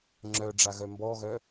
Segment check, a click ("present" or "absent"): present